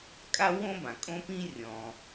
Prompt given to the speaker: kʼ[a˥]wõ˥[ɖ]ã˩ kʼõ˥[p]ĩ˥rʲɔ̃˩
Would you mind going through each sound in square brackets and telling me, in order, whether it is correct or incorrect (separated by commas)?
correct, incorrect, correct